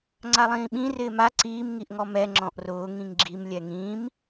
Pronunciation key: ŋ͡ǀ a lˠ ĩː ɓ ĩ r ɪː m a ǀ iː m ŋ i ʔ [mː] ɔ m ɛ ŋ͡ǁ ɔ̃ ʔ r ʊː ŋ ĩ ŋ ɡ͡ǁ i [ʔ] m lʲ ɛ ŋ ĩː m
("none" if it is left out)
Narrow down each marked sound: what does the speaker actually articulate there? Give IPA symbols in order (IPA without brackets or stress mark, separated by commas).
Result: ŋ, none